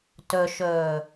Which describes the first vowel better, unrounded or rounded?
rounded